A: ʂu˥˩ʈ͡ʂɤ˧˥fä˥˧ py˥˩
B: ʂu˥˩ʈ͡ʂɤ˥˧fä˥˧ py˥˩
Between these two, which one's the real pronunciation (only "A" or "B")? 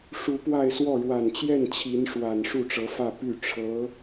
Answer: A